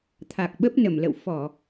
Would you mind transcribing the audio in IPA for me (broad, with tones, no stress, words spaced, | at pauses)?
t̪ʰa˨˩k̚ɓə˦˥p̚nə˧˩mlə̰˧˨w fɔ˧˩˨